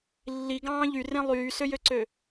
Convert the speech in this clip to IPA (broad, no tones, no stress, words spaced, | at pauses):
lːi ɡɑ̃ːʎyrẽ lˠyːsøjøǀø